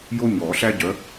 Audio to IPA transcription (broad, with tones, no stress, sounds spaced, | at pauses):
j o˥ ɲ ɔ˨˩˦ ɬ æ˥ ɟ œ˨˥